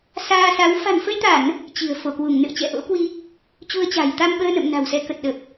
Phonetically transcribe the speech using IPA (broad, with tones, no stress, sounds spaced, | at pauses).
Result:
s aː˧ s a˨˦ w f a̤˨˩ n f ə˧ j t̪ a˧˩˨ n | t͡ɕ i̤˨˩ ə̯ f o˧˩ k w u˧˩ ŋ n ɨ̰˧˨ ə̯ t͡ɕ ɛ̰˧˨ ʔ o̰˧˥ k w i˧ | t͡ɕ u˧ ə̯ t͡ɕ a̤˨˩ j t̪ a˧ m ɓ əː˧ n ə̰˧˨ m n a̤˨˩ w s ɛ˧ k ə˨˩ t̚ ɗ ə˨˩ p̚